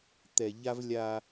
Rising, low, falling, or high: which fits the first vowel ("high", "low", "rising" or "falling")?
low